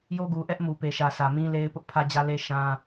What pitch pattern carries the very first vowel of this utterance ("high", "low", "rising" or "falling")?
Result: high